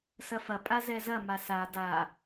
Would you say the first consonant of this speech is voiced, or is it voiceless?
voiceless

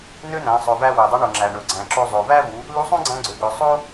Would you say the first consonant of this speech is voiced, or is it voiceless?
voiced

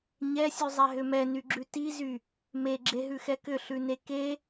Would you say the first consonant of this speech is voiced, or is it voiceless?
voiced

